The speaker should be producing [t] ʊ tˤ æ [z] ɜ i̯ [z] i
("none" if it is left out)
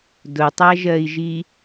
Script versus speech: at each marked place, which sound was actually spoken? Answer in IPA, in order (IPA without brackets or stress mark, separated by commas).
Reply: d, ʒ, ʒ